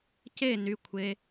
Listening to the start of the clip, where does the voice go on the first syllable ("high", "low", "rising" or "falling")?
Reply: falling